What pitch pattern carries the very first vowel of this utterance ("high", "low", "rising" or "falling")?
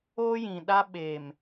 high